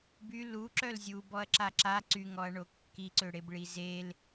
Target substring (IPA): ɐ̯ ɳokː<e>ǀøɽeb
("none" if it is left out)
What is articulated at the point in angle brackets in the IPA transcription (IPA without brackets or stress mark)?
i